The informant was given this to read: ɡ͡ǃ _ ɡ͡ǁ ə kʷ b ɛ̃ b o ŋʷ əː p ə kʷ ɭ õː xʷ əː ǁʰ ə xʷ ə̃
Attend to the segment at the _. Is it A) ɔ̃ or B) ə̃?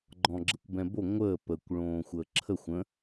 A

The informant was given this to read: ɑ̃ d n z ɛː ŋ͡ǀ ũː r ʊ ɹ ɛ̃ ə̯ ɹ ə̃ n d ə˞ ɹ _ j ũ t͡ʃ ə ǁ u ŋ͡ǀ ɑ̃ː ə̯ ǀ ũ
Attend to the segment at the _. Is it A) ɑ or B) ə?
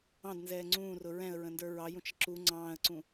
A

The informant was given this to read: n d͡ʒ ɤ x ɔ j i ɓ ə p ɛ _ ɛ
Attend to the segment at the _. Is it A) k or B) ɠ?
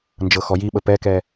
A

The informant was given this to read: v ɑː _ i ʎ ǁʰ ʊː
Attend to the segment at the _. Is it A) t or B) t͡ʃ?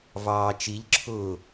B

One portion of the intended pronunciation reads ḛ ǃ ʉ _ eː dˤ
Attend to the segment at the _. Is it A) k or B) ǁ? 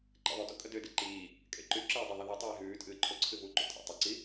B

